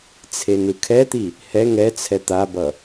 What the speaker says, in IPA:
t͡sʰenɯkʰɛt̪i | hɛ ŋɛt͡sʰɛ t̪abʌ

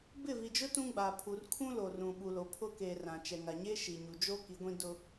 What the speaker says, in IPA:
bɪ˦˨vi˨d͡ʒʊ˦ tũ˦ɡ͡ba˨ pʰu˨rkʰũ˦lo˨rũ˨ ɓu˨lo˨ pʰʊ˦ke˨ rã˨t͡ʃɛ˨ŋa˨ ɲe˦ʃi˨ɲu˨d͡ʒo˦ ki˨˦ɡʷĩ˦ dʊ˦

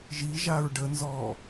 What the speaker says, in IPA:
ʒiʒaɹ ɖənzɔː

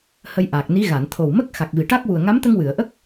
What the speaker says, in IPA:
hə˧jʔa˨˩k̚ni˧˥ ɣa˨˩˨nt̪ʰo˨˩wmə˦˥k̚ xa˨˩k̚vi˨˩˨ʈa˦˥k̚wu˨˩ə̯ ŋa˧˥mt̪ə˧ŋwɨ˨˩˨ə̯ʔə˦˥k̚

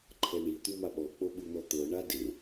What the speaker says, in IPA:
ǃʰɛɳi t̪umaɓɔ k͡poɓun̪ɔt̪ɤ ɳade

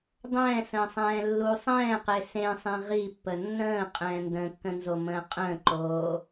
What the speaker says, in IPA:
dˤɛ̃ːsə̃ːsˤɛ̃ː lːu sˤɛ̃ːqe sẽsˤẽ ʁipːə nːə̃ːqʼɛ̃ː ndə̃kːə̃nzomə̃ː qʼə̃ːǃoː

